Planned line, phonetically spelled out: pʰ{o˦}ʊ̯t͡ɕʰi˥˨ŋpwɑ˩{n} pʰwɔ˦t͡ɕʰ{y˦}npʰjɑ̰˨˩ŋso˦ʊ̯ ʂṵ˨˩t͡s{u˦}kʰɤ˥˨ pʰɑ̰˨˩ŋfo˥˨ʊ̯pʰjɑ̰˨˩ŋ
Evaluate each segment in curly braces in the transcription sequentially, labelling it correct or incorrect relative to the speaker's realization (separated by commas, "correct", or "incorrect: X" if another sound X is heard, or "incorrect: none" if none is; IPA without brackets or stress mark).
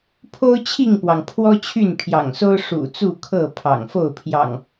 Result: correct, incorrect: ŋ, incorrect: y˥˨, incorrect: u˥˨